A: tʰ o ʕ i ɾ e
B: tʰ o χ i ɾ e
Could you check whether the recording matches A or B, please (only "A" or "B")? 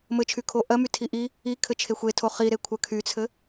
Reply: B